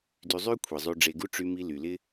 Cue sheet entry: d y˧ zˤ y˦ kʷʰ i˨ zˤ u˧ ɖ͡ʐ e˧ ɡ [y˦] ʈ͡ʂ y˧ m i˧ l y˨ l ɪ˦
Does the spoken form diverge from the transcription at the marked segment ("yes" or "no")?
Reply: yes